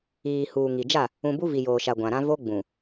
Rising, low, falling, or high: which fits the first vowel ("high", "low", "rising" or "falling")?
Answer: low